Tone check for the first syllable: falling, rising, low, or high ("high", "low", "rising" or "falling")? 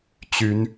rising